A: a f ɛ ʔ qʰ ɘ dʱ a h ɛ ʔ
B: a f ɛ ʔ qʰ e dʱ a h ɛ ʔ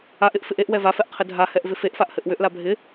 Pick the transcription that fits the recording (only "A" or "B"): A